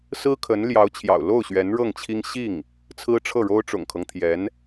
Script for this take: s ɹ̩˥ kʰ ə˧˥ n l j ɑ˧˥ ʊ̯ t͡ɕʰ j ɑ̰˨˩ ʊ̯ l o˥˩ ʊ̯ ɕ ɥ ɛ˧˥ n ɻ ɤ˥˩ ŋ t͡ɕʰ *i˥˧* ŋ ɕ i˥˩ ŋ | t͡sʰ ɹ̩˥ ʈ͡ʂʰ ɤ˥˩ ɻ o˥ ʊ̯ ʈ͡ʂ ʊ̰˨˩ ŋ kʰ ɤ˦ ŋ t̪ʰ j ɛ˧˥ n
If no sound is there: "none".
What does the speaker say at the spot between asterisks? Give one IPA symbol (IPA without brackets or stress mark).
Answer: i˥